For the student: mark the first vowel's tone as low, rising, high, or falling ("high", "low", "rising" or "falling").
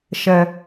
low